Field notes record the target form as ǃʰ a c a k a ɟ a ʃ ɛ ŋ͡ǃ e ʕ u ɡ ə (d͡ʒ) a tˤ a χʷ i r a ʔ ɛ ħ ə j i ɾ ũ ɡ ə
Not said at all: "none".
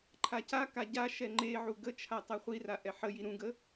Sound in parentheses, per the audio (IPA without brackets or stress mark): t͡ʃʰ